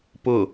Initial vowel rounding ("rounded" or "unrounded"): rounded